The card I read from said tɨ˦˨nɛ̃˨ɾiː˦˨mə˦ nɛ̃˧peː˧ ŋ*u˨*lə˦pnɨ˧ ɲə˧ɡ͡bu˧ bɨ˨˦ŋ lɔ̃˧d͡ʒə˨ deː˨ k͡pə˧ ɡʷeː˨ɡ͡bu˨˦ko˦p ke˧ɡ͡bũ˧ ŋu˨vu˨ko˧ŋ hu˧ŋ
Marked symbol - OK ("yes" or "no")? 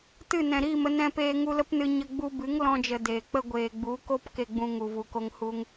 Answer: no